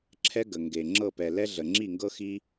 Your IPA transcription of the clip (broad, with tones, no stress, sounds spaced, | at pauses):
ǁʰ ɛ˦ ɡ ə˨ ŋ ɡ e˨ ŋ͡ǁ ɤ˦˨ p ɛ˨ l ɛ˦ ɮ ə˨ ŋ͡ǁ i˦˨ ŋ ɡ ɤ˦ x i˦